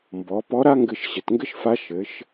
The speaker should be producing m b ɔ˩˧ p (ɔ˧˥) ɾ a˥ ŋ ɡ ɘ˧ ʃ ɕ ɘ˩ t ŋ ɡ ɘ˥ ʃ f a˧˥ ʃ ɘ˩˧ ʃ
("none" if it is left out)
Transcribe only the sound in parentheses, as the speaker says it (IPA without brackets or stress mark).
ɔ˧˥